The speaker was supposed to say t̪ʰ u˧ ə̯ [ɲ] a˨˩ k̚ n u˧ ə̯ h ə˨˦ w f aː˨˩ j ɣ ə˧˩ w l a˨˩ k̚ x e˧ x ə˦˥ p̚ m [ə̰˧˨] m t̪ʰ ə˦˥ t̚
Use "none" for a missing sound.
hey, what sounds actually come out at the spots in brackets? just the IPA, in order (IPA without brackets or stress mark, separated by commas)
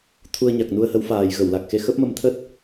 ɲ, ə˧